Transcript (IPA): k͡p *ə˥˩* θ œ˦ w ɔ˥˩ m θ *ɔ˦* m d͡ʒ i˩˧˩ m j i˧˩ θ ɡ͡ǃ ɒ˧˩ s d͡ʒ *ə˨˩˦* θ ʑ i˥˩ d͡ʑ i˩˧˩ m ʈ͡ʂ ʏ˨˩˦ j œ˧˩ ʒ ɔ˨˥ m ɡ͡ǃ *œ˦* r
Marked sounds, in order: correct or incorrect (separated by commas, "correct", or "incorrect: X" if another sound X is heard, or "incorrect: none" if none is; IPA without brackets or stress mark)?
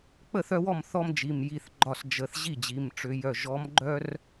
correct, correct, correct, correct